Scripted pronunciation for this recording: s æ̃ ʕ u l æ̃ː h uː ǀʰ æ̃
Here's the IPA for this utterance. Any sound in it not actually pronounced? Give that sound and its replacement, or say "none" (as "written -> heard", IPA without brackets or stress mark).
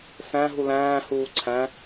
ʕ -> ɦ